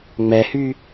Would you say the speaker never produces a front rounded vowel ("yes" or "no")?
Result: no